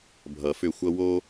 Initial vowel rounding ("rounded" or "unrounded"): unrounded